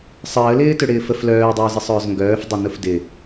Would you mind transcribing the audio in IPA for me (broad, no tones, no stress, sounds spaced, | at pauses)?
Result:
sˤ əː l ɪː t ø ɽ ɪː f ə f l œː dˤ ʊː z ɪ sˤ ʊː z ŋ ɡ œː f dˤ ɪ n ʊ f d ɪ